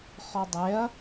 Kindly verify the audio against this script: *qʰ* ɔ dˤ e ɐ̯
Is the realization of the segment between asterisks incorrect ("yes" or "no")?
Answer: yes